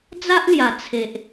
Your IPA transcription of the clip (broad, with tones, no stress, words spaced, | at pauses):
d͡za˦ʔlja˨˩ t͡sʰe˨ʔ